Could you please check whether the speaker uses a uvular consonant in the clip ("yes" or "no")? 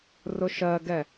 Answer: no